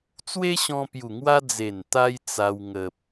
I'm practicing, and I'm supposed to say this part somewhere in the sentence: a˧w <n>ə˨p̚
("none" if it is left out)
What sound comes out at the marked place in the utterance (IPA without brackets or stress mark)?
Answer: ŋ